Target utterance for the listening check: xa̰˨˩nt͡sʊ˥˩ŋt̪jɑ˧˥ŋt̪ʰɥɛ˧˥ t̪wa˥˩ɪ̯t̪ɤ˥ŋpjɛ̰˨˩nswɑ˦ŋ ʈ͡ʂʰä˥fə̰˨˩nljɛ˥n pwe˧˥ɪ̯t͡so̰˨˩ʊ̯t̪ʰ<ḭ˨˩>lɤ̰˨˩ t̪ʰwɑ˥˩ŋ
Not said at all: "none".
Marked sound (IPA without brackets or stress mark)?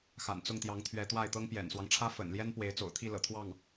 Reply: i˥˩